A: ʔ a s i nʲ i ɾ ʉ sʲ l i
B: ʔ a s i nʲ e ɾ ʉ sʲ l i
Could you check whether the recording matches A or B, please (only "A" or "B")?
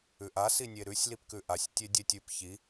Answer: B